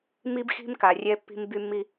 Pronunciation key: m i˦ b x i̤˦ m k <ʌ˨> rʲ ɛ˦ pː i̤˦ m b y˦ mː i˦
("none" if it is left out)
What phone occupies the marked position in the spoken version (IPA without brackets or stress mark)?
a˨